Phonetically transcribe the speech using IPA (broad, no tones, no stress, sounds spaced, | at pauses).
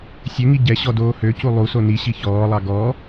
sʲ ø ŋ i ɟ ɛ ɕ ɔ d oː h ø c u lˠ u s o n i ɕ i ç ɔː lˠ ɑ ɡ ɔ